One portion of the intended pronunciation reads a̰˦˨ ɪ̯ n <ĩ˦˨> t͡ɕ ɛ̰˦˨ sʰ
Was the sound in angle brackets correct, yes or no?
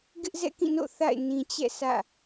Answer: no